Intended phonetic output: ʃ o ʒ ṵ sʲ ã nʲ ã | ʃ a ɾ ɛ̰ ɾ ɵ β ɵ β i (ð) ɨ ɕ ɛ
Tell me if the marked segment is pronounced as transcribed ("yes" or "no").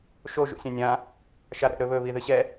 yes